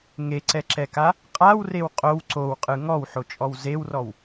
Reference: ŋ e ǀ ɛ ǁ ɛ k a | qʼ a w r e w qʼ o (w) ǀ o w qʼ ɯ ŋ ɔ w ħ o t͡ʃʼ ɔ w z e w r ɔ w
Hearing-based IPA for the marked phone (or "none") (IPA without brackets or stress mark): w